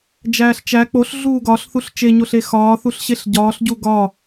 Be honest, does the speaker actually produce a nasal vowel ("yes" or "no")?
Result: no